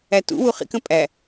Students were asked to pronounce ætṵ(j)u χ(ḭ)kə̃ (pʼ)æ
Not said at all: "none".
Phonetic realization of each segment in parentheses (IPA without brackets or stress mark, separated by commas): w, ḭ, pʼ